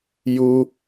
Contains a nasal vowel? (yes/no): no